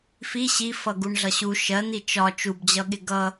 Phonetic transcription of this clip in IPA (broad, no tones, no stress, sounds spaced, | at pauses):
f i ɕ i f ʌ ɡ u ɳ ɮ ʌ ɕ u ʃ ɜ n̪ i t͡ʃ ɒ t͡ʃ u b d͡ʑ ʌ ɠ ɪ ɡ ʌ